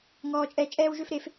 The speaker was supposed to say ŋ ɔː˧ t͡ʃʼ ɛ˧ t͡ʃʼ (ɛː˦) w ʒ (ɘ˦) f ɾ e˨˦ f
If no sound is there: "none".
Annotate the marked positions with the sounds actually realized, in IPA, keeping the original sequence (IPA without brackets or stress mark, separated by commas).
ɛː˦, ø˦